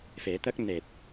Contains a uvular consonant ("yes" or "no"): no